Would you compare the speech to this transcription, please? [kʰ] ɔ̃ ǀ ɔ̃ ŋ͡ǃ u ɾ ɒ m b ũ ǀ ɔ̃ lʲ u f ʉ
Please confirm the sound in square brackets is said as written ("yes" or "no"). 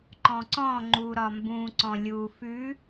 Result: no